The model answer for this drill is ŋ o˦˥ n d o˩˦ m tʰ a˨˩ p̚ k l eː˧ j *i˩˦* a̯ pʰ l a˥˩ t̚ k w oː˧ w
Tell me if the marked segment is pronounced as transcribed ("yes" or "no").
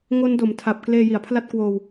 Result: yes